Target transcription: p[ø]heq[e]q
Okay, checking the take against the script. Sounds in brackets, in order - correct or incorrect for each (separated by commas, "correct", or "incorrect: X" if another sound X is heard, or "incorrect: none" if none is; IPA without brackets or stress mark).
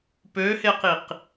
correct, incorrect: i